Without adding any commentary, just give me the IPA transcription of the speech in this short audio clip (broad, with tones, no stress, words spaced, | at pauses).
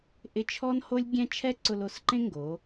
ʔɪ˧t͡ʃʰɔ˥nho˥lʲɡʲɛ̃˥ t͡ʃʰɛ˥ǀʊ˧lo˩˧sǃẽ˥ ŋɡoː˩˧